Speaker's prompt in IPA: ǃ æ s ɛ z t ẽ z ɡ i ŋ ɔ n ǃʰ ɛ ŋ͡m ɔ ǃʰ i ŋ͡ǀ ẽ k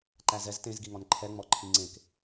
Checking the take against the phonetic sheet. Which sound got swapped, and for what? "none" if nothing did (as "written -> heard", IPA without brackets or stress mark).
s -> z